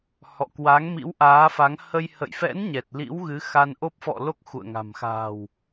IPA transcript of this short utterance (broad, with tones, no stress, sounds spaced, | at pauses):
h ɔ̰˧˨ k w a˨˦ ŋ m ḭ˧˥ w ʔ aː˨˦ f a˨˦ ŋ h ə˧ j h ə̰˧˨ j f ɛ̰˧˥ n ɲ ɛ˨˩ t̚ l ḭ˧˥ w ɣ ɨ˨˦ x a˧ n ʔ o˦˥ p̚ f ɔ̰˧˨ l o˦˥ k̚ x ṵ˧˨ ə̯ ŋ a̤˨˩ m x a̤ː˨˩ w